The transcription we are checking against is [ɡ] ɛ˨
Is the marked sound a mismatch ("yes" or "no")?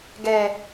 no